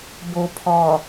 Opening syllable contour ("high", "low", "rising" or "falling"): low